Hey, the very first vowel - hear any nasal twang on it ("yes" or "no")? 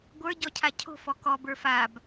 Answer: no